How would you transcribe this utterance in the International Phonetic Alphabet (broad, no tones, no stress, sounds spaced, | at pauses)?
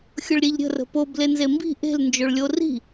xʲ ʊ ɭ ɾʲ e ʎ ɾʲ ə̤ r ə̤ p o b l e n z e m b i̤ ʔ e̤ l n d͡ʒ o ɭ lʲ o r i̤